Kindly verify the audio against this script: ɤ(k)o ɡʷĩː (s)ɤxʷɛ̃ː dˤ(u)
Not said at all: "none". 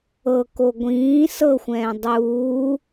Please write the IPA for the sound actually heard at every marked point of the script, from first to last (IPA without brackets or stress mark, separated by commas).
k, s, uː